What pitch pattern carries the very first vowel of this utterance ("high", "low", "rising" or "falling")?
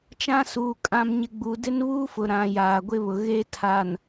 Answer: high